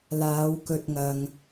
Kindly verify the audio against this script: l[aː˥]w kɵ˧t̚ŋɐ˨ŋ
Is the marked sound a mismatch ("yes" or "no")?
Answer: yes